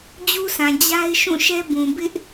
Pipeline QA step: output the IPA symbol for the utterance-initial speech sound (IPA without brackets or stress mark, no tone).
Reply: d͡ʑ